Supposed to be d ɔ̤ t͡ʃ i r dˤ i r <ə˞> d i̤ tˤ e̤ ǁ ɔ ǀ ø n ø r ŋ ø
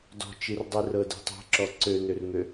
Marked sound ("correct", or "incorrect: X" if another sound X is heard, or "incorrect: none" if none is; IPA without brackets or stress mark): incorrect: ɤ